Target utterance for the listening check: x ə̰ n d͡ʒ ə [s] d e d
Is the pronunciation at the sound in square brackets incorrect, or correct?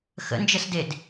correct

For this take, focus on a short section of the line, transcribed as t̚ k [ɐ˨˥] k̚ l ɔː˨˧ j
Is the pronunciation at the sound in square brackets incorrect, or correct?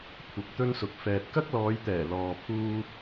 incorrect: ɐ˥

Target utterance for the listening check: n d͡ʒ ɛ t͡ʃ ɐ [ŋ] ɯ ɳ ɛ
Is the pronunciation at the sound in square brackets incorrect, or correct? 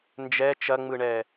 incorrect: ŋ͡m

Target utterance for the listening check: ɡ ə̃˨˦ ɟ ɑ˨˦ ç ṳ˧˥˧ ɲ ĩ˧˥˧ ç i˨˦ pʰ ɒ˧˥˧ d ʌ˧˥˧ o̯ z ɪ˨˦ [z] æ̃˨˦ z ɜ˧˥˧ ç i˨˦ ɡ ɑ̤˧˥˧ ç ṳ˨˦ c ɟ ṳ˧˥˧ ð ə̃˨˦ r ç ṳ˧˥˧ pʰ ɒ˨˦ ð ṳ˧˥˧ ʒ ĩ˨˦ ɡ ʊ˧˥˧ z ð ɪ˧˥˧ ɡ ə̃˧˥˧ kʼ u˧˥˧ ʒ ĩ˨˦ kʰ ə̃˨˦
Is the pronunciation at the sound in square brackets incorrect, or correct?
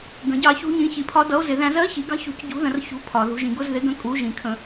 incorrect: ð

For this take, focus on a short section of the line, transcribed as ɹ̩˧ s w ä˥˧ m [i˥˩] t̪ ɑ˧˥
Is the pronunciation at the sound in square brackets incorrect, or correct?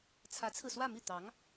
correct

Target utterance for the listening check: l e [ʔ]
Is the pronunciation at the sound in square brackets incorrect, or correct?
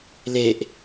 correct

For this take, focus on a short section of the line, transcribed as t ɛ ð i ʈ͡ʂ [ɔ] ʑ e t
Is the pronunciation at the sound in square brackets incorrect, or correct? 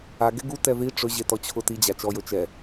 incorrect: ɵ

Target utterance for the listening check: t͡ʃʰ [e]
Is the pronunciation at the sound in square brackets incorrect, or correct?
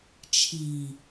incorrect: i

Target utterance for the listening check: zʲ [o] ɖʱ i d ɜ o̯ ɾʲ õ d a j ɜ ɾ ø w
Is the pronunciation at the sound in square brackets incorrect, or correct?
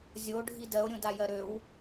correct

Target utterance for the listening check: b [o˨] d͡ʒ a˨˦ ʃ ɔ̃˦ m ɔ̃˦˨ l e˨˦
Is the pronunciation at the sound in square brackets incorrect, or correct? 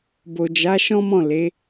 correct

